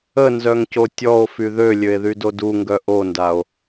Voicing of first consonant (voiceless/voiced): voiced